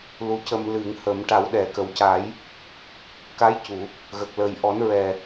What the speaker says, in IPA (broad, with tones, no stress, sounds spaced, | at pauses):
l u˧˥ c ə˧ m l ɨ˨˩˨ ŋ h ə˨˩˨ m ʈ a˨˩˦ w ɗ ɛ˨˩˨ k ə˨˩˨ w c a˨˩˦ j | k a˧˥ j c u˨˩˨ | ɣ ə˨˩ k̚ l əː˨˩ j ʔ ɔ˨˩˦ n ɹ ɛ˨˩